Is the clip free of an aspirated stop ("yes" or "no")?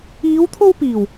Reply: no